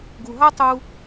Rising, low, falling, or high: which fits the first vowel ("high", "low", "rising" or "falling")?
low